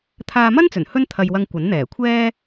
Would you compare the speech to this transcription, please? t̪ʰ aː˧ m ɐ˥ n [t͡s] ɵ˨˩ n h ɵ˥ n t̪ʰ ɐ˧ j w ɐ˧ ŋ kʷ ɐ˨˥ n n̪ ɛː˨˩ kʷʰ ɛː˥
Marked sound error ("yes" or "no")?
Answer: no